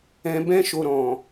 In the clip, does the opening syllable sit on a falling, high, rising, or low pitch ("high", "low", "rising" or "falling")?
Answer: low